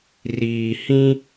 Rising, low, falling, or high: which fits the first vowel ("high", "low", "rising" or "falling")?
low